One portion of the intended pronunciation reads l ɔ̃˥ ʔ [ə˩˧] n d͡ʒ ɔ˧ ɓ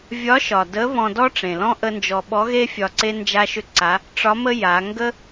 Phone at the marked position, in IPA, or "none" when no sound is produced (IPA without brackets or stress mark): ə˥